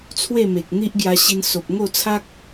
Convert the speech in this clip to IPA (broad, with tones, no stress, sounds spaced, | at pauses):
t͡sʰ w e˥˧ m e˨ k̚ n̪ i˦ ʔ ɡ j a˧ ɕ i˧ n s o˨ p̚ ŋ o˥˧ t͡sʰ a˦ k̚